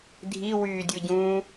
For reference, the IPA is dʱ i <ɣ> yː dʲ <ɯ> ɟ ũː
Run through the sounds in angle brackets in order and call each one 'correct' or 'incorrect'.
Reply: incorrect: w, correct

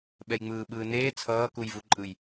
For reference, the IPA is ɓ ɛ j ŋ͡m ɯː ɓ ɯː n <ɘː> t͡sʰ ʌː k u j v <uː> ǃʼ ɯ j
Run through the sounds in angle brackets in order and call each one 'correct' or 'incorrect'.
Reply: incorrect: eː, incorrect: u

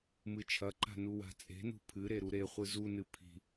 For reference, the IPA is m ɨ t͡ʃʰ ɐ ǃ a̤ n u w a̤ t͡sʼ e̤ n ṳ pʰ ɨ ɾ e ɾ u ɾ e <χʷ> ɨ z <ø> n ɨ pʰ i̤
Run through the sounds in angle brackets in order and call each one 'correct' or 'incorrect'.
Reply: correct, incorrect: u

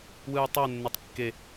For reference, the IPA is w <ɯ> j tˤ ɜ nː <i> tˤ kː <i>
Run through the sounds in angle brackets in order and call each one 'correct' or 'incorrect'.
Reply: correct, incorrect: e, incorrect: e

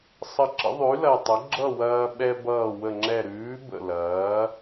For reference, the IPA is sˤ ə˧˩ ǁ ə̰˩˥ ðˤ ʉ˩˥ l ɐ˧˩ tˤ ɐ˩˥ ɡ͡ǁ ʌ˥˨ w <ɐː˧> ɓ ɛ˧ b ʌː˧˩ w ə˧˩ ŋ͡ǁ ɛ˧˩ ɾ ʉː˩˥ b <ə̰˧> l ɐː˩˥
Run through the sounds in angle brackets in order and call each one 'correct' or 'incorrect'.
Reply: correct, incorrect: ə̰˧˩

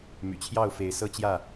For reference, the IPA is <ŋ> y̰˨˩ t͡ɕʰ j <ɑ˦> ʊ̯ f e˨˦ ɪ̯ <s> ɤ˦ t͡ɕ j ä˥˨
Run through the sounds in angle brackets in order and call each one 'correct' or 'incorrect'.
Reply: incorrect: m, incorrect: ɑ˥˨, correct

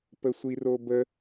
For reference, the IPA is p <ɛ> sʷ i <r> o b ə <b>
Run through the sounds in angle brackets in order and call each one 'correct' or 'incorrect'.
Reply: incorrect: ə, correct, incorrect: none

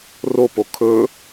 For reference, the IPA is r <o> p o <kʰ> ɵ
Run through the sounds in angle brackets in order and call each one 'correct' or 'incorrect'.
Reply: correct, correct

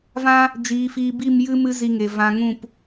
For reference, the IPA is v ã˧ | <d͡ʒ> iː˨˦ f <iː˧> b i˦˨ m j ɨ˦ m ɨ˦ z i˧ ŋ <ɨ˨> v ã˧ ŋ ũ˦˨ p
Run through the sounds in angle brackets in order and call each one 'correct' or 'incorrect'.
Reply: correct, correct, incorrect: e˨

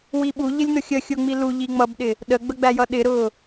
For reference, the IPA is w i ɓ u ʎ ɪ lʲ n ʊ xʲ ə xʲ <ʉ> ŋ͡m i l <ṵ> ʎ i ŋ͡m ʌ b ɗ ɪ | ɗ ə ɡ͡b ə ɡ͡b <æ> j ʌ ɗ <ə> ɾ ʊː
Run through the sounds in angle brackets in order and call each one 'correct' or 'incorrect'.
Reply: incorrect: ʊ, incorrect: u, correct, incorrect: ɪ

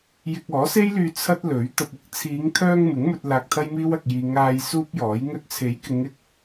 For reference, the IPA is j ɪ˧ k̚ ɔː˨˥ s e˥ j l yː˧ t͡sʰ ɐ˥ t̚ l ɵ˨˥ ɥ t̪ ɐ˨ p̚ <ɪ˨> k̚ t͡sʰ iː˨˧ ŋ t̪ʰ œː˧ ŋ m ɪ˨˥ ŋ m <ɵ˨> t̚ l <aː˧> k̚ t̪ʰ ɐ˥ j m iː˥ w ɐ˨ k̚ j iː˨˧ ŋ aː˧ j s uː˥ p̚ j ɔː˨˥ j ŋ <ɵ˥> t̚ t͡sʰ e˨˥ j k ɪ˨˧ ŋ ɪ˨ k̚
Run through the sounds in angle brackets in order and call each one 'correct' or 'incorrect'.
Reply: incorrect: ɪ˥, incorrect: ɵ˧, correct, incorrect: ɵ˧

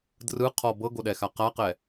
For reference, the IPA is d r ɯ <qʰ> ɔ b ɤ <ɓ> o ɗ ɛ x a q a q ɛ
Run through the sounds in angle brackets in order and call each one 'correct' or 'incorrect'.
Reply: correct, incorrect: ɡ

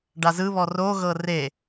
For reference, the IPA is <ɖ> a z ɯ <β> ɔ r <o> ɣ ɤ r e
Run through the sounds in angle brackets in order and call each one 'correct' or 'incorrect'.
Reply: correct, correct, correct

